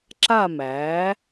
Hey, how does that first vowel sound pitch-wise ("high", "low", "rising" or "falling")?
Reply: falling